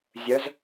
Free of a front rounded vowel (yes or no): no